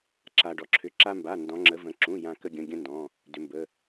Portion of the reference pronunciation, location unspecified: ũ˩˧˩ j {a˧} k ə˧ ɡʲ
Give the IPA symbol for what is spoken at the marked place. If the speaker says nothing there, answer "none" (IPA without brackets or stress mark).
ã˧